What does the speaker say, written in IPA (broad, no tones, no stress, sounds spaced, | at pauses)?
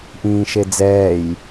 ʔ ĩː ʃ e d͡z ɛː j